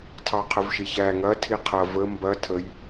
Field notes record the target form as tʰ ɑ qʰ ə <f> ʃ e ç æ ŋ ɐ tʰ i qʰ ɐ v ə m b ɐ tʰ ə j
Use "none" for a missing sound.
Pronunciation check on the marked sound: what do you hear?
v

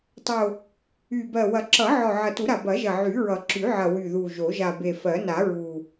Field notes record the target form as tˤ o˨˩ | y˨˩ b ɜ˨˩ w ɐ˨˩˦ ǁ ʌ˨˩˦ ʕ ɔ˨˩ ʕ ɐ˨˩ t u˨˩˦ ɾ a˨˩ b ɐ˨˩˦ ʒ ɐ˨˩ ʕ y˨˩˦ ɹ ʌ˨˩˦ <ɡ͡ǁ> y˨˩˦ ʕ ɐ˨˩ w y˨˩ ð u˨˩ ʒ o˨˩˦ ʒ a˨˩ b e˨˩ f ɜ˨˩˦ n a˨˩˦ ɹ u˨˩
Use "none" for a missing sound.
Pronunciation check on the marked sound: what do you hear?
ǁ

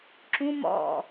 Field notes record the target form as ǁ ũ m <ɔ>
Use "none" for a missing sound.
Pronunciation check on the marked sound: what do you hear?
ɔ̰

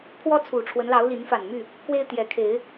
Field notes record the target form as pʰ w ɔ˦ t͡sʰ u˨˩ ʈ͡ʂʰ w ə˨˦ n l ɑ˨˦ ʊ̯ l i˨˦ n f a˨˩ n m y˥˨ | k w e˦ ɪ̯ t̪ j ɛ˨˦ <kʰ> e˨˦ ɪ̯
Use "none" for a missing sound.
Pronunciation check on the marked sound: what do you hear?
kʰ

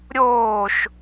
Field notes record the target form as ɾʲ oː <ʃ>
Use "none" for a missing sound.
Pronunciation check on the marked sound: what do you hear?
ʃ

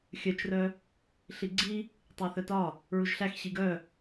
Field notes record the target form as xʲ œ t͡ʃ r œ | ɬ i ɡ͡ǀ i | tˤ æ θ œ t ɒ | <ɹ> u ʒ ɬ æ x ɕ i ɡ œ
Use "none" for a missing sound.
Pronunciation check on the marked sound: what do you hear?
ɹ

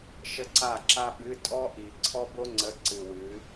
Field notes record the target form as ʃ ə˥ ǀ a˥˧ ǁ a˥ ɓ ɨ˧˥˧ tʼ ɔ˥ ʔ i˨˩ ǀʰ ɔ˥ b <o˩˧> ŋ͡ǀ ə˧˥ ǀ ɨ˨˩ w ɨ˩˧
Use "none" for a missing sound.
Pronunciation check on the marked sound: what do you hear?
o˥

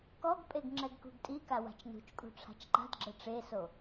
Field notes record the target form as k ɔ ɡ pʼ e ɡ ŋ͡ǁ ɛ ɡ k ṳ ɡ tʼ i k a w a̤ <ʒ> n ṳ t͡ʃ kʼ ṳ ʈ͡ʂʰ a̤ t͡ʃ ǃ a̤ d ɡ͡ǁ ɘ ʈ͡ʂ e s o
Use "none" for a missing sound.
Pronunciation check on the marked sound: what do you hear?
t͡ʃ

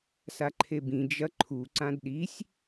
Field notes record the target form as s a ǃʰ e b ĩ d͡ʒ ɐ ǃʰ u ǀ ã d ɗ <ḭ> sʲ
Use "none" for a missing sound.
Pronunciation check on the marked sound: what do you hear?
i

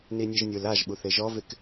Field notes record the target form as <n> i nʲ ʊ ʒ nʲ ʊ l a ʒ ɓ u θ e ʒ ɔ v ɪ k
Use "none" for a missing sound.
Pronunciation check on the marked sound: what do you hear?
n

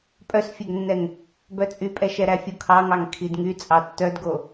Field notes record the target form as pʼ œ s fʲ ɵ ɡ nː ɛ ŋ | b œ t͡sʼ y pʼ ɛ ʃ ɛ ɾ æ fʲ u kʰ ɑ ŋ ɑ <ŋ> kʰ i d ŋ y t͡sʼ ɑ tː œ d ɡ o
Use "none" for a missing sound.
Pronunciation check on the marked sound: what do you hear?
ŋ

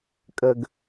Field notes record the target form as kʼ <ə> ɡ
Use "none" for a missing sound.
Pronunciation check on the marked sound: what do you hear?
ə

